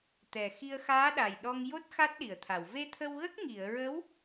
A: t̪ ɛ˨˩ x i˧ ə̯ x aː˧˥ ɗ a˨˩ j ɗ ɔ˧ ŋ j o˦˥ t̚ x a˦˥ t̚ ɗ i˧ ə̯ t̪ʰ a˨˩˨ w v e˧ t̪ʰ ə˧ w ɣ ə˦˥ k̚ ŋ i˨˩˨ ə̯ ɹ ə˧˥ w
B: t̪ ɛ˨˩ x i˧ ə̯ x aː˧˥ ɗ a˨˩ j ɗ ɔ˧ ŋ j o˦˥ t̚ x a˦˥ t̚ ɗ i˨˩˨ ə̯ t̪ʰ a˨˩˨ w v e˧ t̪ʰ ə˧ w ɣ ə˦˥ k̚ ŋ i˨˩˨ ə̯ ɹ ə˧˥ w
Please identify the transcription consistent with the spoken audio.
B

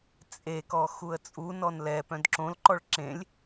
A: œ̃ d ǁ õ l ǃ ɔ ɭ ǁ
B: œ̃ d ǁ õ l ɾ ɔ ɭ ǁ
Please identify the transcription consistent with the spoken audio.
A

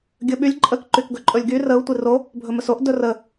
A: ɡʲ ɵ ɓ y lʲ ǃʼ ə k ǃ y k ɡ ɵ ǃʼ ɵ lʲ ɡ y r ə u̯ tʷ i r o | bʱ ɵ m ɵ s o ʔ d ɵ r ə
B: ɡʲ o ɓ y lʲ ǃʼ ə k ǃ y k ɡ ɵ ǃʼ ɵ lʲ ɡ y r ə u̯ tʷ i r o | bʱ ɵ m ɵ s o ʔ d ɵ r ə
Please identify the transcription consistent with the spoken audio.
A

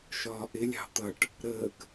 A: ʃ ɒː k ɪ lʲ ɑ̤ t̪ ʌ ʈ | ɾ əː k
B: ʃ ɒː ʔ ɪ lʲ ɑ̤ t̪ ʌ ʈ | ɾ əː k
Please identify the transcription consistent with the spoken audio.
B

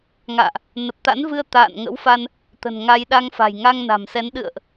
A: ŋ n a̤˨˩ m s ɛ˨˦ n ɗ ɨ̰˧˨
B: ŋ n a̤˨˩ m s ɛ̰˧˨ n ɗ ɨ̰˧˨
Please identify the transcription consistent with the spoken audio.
A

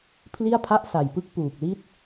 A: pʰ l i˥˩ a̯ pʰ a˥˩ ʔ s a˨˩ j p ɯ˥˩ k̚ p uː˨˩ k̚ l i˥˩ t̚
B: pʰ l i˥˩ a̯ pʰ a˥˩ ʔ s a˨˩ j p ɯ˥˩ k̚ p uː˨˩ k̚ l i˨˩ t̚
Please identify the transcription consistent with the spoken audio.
A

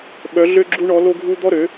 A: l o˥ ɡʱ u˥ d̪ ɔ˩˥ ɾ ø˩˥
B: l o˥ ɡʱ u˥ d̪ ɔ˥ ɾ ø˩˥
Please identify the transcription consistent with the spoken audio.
B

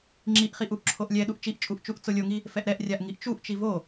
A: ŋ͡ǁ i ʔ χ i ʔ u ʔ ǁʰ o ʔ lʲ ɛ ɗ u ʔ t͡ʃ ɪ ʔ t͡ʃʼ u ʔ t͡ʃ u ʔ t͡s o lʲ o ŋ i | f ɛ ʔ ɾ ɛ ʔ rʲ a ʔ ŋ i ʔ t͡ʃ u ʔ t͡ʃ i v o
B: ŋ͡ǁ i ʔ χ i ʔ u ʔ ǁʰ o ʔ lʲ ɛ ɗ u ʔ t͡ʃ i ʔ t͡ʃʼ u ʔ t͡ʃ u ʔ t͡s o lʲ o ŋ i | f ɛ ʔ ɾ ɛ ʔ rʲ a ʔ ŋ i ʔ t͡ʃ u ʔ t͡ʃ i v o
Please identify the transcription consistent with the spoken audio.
B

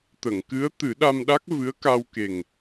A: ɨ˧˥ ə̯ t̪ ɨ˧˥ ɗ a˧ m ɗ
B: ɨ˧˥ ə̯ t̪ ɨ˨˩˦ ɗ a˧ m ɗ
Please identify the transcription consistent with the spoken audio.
B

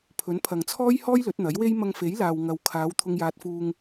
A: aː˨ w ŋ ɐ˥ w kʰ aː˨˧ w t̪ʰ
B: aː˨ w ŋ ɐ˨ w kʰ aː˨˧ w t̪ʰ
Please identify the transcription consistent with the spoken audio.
B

